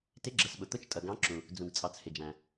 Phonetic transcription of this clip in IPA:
t ɪ˨˦ ɡ͡ǁ ə˩ s ɓ ʊ˩ t̪ ʊ˨˦ t͡ʃ tʼ ʌ˩ ɡ ɑ̃˨˦ ǁ ũ˩ | d͡z ũ˩ ɡ t͡sʼ ɑ˩ t͡s h ɪ˩ d͡ʒ æ̃˩

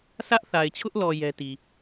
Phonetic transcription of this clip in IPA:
s ä˦ ʔ θ a˨ ɪ̯ t͡ɕʰ ʊ˦ ʔ l ɔ˨ j ɛ˦ t i˨

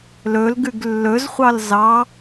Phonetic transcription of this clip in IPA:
l ɵ l ɡ ʉ ɡ lː ɵ z χʷ ɑ l z ɑ

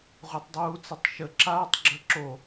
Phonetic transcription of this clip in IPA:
ʁʷ a tˤ dˤ uː t͡s a tˤ ʃ ə ǁ aː tˤ ɡ͡ǁ ə ǁ o

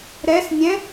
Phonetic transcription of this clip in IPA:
ɾ ɛ s nʲ ɛ̃

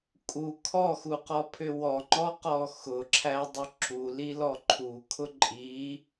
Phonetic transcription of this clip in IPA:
kʼ u kʰ ɔ x u q ɔ pʰ ʏ w ɔ ŋ͡ǃ ɔ q ɔ x ʊ ǁʰ æ dˤ ʏ ǁ u l i l ɔ ǃʰ u kʰ ʊ ǃʼ i

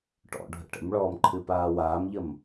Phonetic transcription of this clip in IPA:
ʈ ɔ̰ ɖʱ ə̰ ʈ ə̰ m ɭ ɔː m ǃʰ ɨ p aː w aː m ʎ ə m

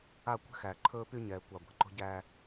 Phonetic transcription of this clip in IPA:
a˦˨ kʷ e̤˦ x æː˨ ǃʰ ɵː˦ p y˦ ɲ ɛː˨ kʷ a˨ ɡʷ e̤˨ ǃ o̤˦ ɟ æ˦

